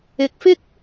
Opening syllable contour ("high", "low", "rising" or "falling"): low